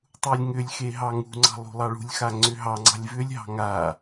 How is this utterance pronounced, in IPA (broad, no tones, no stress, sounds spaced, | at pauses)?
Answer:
tˤ u lʲ ŋ ʏ lʲ x e ɦ ɑ ŋ ṳ ŋ͡ǀ ɑ̤ lˠ ṳ lˠ ɑ ɭ ṳ lʲ x a ŋ͡ǀ ʏ ɦ ɑ ŋ͡ǀ ɑ̤ lʲ v ʏ lʲ ɦ ɑ̤ ŋ a